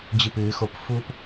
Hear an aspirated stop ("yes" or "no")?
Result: no